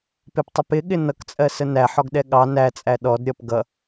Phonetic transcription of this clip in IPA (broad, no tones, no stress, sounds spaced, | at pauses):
p ɪ p tˤ ɪ p ɪ ɠ ɪ n ʌ k t͡sʼ ɜ s ə n æ ħ ɔ ɡ ɗ ɛ ɠ ɑ n æ t͡sʼ æ ɗ ɔ d ɾʲ ʌ p ɡ ʌ